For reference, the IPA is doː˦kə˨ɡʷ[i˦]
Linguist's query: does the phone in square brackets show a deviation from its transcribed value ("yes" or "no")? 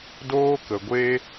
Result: yes